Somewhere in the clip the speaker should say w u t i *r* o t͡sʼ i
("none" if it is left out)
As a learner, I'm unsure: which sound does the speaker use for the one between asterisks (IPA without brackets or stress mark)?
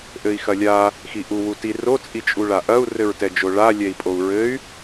r